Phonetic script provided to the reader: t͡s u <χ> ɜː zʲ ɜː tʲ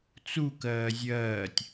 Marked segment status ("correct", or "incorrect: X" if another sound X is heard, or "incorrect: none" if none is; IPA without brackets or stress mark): incorrect: k